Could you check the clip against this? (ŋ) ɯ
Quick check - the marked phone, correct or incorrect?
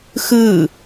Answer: incorrect